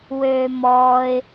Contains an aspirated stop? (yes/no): no